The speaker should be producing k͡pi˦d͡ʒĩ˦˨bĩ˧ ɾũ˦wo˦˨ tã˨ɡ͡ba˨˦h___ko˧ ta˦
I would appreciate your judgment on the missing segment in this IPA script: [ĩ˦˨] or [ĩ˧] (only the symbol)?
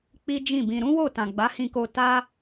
ĩ˧